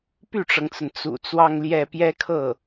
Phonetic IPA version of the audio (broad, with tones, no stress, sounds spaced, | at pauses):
p y˥˩ ʈ͡ʂ ɤ˩ ŋ t͡s ə˩ n t͡s ṵ˨˩ t͡s w ɑ˥˧ ŋ l j ɛ˥˩ p j ɛ˥ kʰ ɤ˥˩